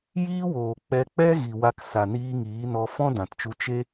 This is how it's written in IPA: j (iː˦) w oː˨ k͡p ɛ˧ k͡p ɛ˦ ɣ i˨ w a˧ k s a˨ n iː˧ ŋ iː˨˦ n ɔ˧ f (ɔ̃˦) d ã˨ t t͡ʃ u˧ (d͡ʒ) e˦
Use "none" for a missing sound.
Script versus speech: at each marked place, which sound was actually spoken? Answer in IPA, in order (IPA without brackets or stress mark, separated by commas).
iː˦, ɔ̃˦, t͡ʃ